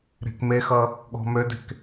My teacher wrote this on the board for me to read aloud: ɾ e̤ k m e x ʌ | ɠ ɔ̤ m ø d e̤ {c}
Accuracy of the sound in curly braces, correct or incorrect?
incorrect